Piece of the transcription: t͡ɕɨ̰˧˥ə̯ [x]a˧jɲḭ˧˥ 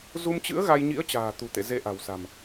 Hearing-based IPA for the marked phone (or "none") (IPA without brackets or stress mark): ɣ